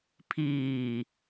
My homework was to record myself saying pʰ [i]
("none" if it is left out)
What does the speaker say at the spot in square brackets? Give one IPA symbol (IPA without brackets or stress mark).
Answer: iː